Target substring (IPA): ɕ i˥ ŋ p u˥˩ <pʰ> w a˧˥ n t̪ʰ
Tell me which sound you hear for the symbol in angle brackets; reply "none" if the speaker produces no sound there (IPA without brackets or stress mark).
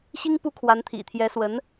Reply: kʰ